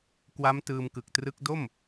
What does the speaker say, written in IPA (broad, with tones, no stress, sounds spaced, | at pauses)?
k w a˦˥ m t ɯː˧ m k ɯ˨˩ k̚ t r ɯ˦˥ k̚ d o˥˩ m